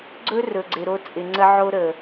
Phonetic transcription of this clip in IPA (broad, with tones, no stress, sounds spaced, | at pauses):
ɡ͡ǀ ɵ˦ r ɵ˨ ɡ͡ǀ ɪ˨ ɾ o˦ t͡sʼ ɪ˨ ŋ͡ǀ ə˦ ʕ o˦ ɾ ə˨